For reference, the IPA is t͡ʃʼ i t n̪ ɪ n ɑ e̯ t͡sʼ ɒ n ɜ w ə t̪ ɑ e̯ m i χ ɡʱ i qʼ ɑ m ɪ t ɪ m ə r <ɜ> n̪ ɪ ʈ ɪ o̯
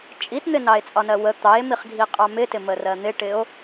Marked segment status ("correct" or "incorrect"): correct